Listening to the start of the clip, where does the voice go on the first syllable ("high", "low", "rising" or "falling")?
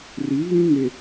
rising